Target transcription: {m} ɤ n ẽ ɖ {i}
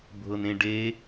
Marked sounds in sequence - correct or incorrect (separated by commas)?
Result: incorrect, incorrect